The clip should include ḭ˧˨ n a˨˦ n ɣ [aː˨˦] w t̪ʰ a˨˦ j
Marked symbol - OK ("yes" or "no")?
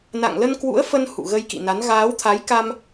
yes